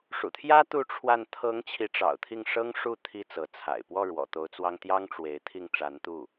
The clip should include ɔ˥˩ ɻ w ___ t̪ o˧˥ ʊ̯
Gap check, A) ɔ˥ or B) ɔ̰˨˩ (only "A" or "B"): B